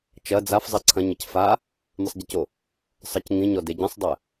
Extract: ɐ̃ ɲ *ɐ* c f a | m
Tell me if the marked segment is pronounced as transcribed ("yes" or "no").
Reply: yes